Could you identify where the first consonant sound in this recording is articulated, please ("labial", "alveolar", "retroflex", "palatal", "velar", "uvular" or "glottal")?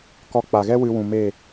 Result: velar